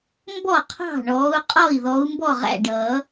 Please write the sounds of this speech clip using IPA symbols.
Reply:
m b ɔ˥˩ qʰ ɑ̤˥˩ ɳ ɔː˨˦ u̯ qʼ ɔ˥˩ i̯ ð ɔ˨˦ u̯ m b ɔ˥˩ ʁ æ̰˥˩ ɖ ʌː˨˩˦

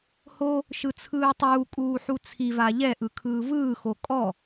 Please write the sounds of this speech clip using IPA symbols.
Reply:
h o | ʃ ɯ t͡sʰ ɯː tˤ uː kʼ uː ħ u t͡sʰ i v a ʎ ɛ ʔ ɯ kʰ ɯː v ɯː x o kʼ ɔ

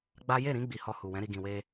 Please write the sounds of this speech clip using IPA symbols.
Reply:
ɡ͡b a˦ j e˦˨ ɾ ĩ˧ ɡ͡b i˨ h ɔ˧ h u˨ w ɛ̃˨˦ ɾ i˧ ɡ ĩ˨ w e˧

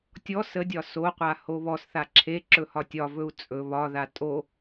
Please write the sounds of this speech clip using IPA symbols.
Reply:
tʲ ɔ s ə dʲ ɒ s o qʷ a h o β ɔ s θ a ǁʰ e ǁ ɵ h ɒ tʲ ɒ v ɵ u̯ t͡sʼ ɵ β ɒ ð a tʼ o

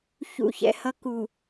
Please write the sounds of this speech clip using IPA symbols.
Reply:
ç ṵ˨ ç ɛ̰˨ h ʌ˨ k u˨

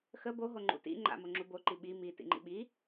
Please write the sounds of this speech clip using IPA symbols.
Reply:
x ə b o ɦ o ŋ͡ǃ ṵ t ḭ ŋ͡ǃ a̰ m o ŋ͡ǁ u b o ǃ i ɓ i m i t ḭ ŋ͡ǃ ḭ ɓ i

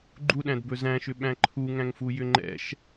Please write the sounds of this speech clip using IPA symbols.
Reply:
ɡ͡ǃ u ɗ æ̃ d b ɵ z æ̃ ʃ ʏ ɓ æ̃ ǃʰ u ŋ æ̃ ŋ f u j ʏ ŋ͡ǃ ɛ̰ ʃ

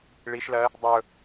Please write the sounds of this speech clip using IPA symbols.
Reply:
ɭ i ʃ l ɜ | dˤ ɵ

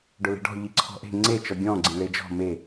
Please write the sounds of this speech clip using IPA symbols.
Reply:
ɖ ʊ l e̤ ɖ ɔ̤ ʎ i ǀʰ ɔ̤ ʔ e̤ ŋ͡ǀ e t͡ʃ ɔ ɡʲ ɔ̃ ɡ͡ǀ ĩ ɭ e d͡ʒ ɔ̤ m e

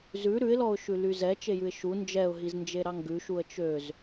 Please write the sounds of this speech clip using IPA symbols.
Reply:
z ʉ ɾ ʉ ɪ̯ l ɔ ʊ̯ ʃ ʉ l y z ɛ t͡ʃ e j ʉ ɪ̯ ʃ u n d͡ʒ ɛ ʊ̯ ɦ i z n d͡ʒ e ɾ ɑ ŋ ɡ ʉ ʃ u ə̯ t͡ʃ ø z

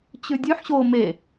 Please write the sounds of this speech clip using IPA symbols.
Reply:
t͡ɕ ʉ dʲ ʉ ħ ɕ o m e

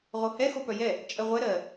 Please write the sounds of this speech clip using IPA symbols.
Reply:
ʁ o h ɛ x o p œ j ɛ | t͡ʃʼ ɜ ʁʷ ɛ ɾ ɜ

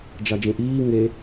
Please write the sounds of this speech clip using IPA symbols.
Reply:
d͡ʒ ɑ d͡ʒ ẽ ʔ iː ŋ e

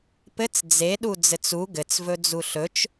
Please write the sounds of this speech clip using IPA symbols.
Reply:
p ɘ t͡s d͡z e ɗ u d͡z ɘ t͡s u ɡ ɘ t͡s v ɵ d͡z u ɬ ɵ t͡ʃ

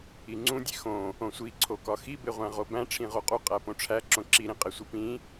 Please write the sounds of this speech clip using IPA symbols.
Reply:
i ŋ͡ǀ ũ dʲ e x õ | õ sʷ i ǀʰ o k ɒ x i b e ʁʷ æ̃ ʁ o b æ̃ ʈ͡ʂʰ ĩ ʁ o qʼ u qʼ æ p õ ʈ͡ʂʰ æ ǁ õ ǁ i ɾ ĩ qʼ e sʷ i p ĩ

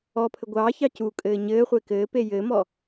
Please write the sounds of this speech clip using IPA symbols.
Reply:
ɔ pʰ ɘ ɡʷ ɑː ç ɑ c u kʼ ɘː ɲ ɘː χʷ e k ɘː p e j ɘː m ɔ

